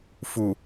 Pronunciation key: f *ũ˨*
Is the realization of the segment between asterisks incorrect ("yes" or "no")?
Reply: yes